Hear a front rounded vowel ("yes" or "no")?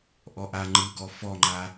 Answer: no